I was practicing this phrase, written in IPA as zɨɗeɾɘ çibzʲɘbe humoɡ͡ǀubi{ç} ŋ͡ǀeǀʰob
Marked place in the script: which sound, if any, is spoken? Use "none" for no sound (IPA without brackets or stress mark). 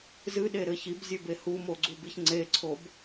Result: ç